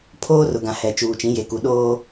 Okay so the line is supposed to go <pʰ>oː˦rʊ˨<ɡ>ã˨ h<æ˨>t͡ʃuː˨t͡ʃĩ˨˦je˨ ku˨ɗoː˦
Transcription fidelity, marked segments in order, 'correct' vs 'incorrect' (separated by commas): correct, correct, incorrect